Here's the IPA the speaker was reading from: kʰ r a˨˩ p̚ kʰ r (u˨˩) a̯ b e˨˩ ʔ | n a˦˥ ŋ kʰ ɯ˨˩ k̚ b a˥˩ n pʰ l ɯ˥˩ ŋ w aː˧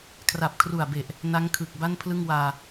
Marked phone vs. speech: correct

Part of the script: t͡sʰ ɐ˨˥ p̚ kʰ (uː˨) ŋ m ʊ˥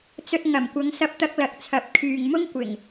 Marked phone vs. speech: incorrect: yː˨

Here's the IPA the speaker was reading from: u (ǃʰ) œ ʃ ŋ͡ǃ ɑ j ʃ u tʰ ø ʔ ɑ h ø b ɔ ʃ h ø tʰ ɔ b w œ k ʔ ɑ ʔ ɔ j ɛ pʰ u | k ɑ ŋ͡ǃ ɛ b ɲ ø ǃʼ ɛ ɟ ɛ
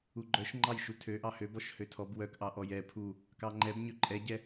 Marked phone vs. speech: incorrect: ɡ͡ǃ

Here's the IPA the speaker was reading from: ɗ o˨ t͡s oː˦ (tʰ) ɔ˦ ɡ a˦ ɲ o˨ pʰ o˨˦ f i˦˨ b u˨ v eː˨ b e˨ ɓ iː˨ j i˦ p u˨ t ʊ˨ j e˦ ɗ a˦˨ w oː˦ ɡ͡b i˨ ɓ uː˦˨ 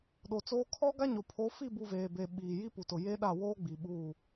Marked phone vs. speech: incorrect: kʰ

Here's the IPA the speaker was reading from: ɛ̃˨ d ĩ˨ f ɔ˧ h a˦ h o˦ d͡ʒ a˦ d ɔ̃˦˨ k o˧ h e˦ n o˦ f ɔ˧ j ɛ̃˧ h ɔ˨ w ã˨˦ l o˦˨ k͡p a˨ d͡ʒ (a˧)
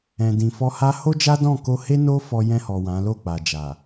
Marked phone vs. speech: incorrect: a˨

